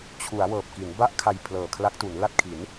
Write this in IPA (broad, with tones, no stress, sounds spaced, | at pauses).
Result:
t͡ɕʰ u˩˦ a̯ w ɤː˨˩ p̚ k i˩˦ n b a˥˩ ʔ kʰ a˧ j pʰ l ɤː˨˩ kʰ l a˦˥ k̚ t u˩˦ n l a˥˩ t̚ kʰ i˩˦ n